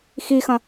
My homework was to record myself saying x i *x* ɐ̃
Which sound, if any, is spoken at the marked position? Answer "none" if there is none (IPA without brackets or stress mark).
x